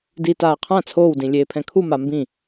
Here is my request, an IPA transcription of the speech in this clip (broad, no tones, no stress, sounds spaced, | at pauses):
d i t aː qʰ ã t͡sʰ oː w d ĩ lʲ eː pʰ ɛ̃ kʰ u m a m b ĩ